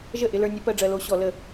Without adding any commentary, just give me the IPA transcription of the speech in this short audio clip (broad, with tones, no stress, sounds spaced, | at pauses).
ʒ ə˥˩ ʔ ɪ˧ l ə˞˧ nʲ ə˧˥ p ɜ˧ ɖ͡ʐ ɜ˧ l o˧˥ ɕ ɔ˧˩˧ l ə˧˩˧